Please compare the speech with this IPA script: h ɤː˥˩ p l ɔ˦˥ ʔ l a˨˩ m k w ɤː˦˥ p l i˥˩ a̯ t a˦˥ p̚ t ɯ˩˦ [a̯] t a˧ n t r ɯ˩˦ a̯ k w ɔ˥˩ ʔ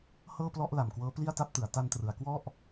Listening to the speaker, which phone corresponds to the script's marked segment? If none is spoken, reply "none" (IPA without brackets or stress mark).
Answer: a̯